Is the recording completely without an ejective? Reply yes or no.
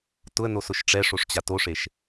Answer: yes